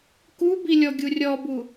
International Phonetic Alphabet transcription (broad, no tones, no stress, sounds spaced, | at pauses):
k u b i lʲ ɔ ɡʲ u rʲ ɔ b u